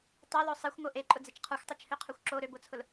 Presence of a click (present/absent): present